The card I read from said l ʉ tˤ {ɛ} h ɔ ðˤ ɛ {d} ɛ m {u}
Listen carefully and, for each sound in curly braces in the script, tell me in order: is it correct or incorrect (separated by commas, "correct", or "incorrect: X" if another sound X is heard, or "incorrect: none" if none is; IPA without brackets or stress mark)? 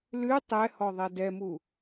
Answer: correct, correct, correct